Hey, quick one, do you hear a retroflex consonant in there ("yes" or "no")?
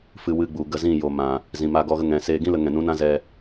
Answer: no